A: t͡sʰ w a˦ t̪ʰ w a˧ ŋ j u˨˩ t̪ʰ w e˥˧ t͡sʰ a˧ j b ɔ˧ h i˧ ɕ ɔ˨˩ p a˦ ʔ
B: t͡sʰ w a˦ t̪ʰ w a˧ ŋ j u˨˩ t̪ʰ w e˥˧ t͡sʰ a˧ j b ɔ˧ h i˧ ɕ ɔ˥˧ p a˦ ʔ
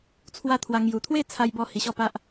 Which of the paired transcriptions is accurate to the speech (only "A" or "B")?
B